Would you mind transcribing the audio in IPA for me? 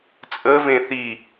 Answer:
t͡sʼ ə v ẽ θ i

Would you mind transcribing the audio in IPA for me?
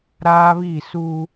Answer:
ɾ aː˦ β iː˦˨ s uː˦

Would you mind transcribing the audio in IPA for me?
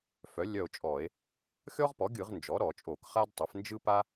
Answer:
f œ˩˥ lʲ œ˦˨ o̯ t͡ʃʼ ɔ˧˩˧ e̯ | xʲ ɔ˥ ʁ p ɔ˩˥ ɡʲ ɯ˧˩˧ ʁ n d͡ʒ ɔ˩˥ ɾ ɔ˧˩˧ t͡ʃʼ o˧˩˧ k χ a˥ d tˤ œ˩˥ f n d͡ʒ ɯ˥ p a˥

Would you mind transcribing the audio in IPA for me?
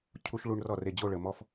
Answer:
cʰ u˧ ʃ ɭ u˧ ɳ r ɔ˥˩ r e˥˩ d͡ʑ o˥˧ ɭ ə˩ m ɔ˧ f

